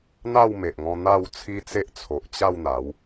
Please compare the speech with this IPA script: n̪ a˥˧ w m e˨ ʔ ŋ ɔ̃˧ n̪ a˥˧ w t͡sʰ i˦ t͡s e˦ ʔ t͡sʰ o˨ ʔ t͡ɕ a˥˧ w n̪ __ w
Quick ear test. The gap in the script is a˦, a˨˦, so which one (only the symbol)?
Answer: a˨˦